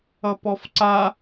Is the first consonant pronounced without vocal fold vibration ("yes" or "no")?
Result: yes